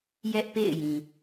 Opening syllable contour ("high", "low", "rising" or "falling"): high